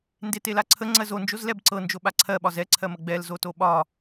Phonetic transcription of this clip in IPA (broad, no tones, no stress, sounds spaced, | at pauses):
n d e t e l a ǀʰ ə ŋ͡ǀ ɜ z o n d͡ʒ o z l ɛ b ǀ ɤ n d͡ʒ o ɓ a ǀʰ ɜ ɓ ɒ z ɛ ǀʰ ɜ m ə ɡ͡b ɛ l z o t o ɓ ɒ